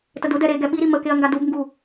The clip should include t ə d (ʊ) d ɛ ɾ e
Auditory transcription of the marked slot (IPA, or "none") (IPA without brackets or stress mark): ʊ